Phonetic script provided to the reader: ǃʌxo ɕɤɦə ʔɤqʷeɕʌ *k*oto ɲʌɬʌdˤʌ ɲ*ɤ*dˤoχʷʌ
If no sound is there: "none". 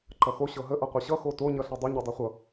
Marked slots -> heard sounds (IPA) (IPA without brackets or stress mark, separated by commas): x, ɤ